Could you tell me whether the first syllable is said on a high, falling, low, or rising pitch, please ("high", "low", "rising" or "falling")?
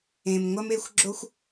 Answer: low